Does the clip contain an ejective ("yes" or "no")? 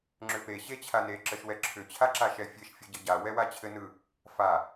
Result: no